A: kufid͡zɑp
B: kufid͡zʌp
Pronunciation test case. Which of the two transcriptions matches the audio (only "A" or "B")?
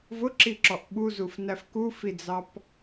A